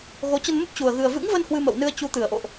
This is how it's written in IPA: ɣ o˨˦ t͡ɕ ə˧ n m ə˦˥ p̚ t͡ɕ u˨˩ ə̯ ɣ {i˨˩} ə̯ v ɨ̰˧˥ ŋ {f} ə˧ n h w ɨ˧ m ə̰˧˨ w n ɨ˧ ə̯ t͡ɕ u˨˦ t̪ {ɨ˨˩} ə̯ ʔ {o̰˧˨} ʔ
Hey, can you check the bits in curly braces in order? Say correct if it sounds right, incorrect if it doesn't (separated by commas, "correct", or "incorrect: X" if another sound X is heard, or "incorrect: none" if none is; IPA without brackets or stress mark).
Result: incorrect: ɨ˨˩, incorrect: v, correct, correct